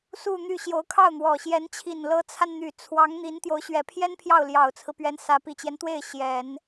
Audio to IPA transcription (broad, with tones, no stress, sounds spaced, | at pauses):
s u˥˧ n̪ y˥˩ ɕ j o˧˥ ʊ̯ kʰ ɑ˥˩ ʊ̯ n̪ w ɔ˨˩ ɕ j ɛ˧˥ n t͡ɕʰ i˨˩ n l ɤ˧˥ t͡sʰ a˧ n n̪ y˨˩ t͡sʰ w ɑ˧˥ ŋ n̪ i˧˥ n t̪ j o˧˥ ʊ̯ ɕ ɥ ɛ˨˩ pʰ j ɛ˥ n pʰ j ɑ˥˩ ʊ̯ l j ɑ˨˩ ʊ̯ t͡sʰ ɹ̩˦ p ɥ ɛ˧˥ n s ä˧˥ p i˨˩ t͡ɕ j ɛ˦ n t̪ w e˥˩ ɪ̯ ɕ j ɛ˨˩˦ n